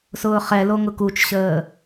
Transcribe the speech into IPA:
s ʊː χ ɛ l o ŋ ʊ k u t͡ʃ ɕ əː

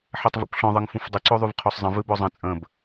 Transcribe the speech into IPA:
ħ ɛ tˤ v o̰ kʷ ɬ ɔ̃ ðˤ ɨ ŋ f ũ f dˤ ɨ ǀ o ðˤ y v qʰ o sˤ zˤ ə̃ v ɨ b ɔ zˤ ə̃ t͡sʼ ə̃ b

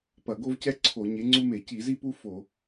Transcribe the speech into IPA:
p ɐ˧˩˧ ɡ o˥ v c ɛ˥ ǀʰ o˧˩˧ ɲ e˨˥ ŋ͡ǀ u˥ m e˧˩˧ c i˧˩˧ z i˥ p u˥ f o˧˩˧

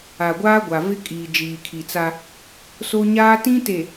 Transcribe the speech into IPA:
a˨ ɡʷ aː˦ ɡʷ a˨ v ɪ˦ kʼ iː˨ d͡ʒ iː˨ kʰ i˨ t͡s a˦ | s o˦ ɲ aː˦ t ĩ˦ t e˨

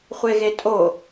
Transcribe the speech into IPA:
χʷ e ɣ e tʼ o

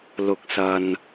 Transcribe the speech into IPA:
l ʊ˨ k̚ s ɐ˨ n

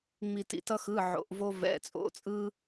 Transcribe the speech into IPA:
ŋ͡m i˥ t ḭ˥ t ʌ˥ x ɯ˧˥˧ ʕ o̰˧˥˧ ʔ v o˥ v ɛ̰˧˥˧ t͡sʼ o̰˧˥˧ t͡sʼ ɯ˥

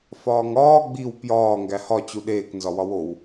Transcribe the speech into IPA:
f ɒː ŋ ɒː ɡ͡b i w p j ɒː ŋ ɡ æ h ɒ t͡ɕ u ɗ eː k n z ɒ w ɒ w o w

